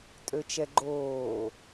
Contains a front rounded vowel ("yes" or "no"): yes